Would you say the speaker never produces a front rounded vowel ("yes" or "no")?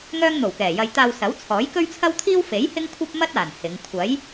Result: no